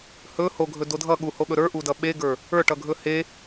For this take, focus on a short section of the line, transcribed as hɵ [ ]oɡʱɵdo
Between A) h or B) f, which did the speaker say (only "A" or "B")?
A